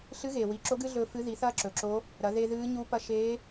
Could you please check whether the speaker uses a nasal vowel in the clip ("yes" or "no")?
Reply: no